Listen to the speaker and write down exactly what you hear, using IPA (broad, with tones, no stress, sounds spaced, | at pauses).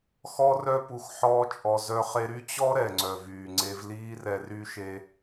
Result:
x ɔ˦ r œ˦ p u˧ x ħ ɔː˦ t͡ʃʼ ɔ˧ z œ˧ χ e˧ ɾ y˦ t͡ɕ ɔ˦ ɾ ɛ˨ ŋ͡ǀ œ˨ v yː˨ ŋ͡ǀ e˧ v l iː˦ r ɛ˧ r y˧ ʃ e˧